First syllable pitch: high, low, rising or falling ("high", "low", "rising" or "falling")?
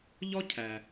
high